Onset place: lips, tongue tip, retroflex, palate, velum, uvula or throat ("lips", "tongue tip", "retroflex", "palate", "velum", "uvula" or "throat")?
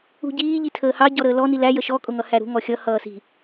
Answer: palate